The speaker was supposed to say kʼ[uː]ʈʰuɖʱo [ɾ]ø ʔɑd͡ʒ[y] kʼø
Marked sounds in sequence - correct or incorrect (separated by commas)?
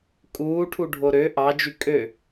correct, correct, correct